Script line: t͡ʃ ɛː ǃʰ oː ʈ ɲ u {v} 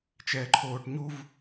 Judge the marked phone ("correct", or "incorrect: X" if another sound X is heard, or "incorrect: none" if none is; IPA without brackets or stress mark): correct